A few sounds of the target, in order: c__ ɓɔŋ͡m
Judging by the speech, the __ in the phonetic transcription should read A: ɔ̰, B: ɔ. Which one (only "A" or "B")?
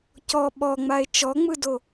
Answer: B